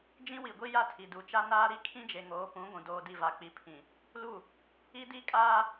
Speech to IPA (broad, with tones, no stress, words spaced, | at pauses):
d͡ʒĩ˦wi˨ɡʷi˦ ja˦tʰi˨du˨t͡ʃa˦ naː˦ɾi˦ kʰĩ˦d͡ʒe˨ŋoː˨˦ pũ˨˦ ɡʷũ˨ doː˨di˨ va˨k͡pi˨pʰĩ˨ | lu˦˨ | i˦di˦kʼaː˦